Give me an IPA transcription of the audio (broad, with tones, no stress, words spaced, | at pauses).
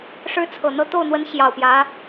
ʂɻ̩˥t͡sʰɤ˨˩ n̪ɤ˥˧ t̪o˥˩ʊ̯n̪wə˧˥n ɕjɑ˨˩ʊ̯pjä˧˥